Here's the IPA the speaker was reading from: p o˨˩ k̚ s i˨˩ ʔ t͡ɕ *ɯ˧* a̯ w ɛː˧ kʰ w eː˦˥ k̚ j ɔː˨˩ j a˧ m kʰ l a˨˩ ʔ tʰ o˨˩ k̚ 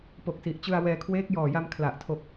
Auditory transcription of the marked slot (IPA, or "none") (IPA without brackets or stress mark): ɯ˧